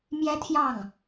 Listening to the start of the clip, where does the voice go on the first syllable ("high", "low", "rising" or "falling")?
high